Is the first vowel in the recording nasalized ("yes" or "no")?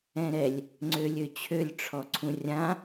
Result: yes